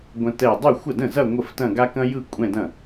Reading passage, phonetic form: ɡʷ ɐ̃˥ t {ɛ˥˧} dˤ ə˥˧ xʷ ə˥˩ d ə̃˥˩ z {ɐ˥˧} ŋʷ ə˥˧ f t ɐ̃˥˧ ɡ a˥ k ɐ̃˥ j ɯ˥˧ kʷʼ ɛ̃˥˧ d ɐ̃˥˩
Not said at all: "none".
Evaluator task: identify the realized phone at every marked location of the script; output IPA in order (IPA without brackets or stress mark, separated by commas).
ɛ˥˧, ɐ˥˧